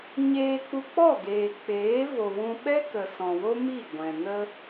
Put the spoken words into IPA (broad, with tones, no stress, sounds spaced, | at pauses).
ɲ eː˧ k͡p u˧ k͡p ɔ˦˨ ɡ eː˨ k͡p eː˨˦ v o˨ w ũ˧ ɓ ɛ˦ k ə˨ s ɔ̃˨ w o˦ m i˦˨ ɡʷ ɛ̃˨ n ə˦